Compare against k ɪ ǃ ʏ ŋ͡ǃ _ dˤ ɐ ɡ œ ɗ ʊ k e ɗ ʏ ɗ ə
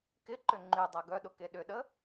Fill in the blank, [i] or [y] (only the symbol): y